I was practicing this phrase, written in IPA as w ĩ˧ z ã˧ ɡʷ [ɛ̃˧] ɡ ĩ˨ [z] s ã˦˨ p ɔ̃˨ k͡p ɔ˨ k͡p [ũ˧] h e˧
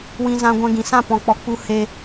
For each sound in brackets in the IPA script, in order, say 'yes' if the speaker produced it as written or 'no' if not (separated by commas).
yes, no, no